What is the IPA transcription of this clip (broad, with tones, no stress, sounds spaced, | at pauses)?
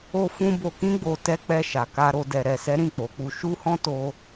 o˧ f ũ˧ b o˨ k ĩ˧ ɡ͡b o˨ t ɛ˨˦ k͡p ɛ˧ ʃ a˨ k a˧ ɾ o˧ d ɛ˨ ɾ ɛ˨ s ɛ˨˦ ɾ ĩ˦˨ k͡p o˨˦ k͡p u˧ ʃ u˦ h ɔ̃˦ t o˦